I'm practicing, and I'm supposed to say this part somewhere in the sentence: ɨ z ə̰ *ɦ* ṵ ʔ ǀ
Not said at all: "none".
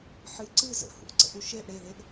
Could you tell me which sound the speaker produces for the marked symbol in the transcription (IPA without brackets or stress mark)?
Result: h